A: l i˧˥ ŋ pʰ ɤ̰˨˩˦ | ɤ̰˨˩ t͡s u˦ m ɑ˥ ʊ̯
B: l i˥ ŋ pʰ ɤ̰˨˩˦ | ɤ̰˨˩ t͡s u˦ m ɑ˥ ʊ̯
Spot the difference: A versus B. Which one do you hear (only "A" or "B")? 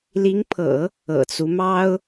A